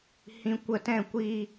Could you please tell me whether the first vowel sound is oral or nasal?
nasal